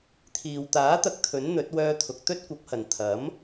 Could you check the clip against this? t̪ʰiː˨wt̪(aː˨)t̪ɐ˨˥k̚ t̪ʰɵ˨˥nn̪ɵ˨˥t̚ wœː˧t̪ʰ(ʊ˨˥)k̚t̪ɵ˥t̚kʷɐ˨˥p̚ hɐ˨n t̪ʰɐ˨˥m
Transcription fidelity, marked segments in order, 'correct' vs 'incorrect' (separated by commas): incorrect, incorrect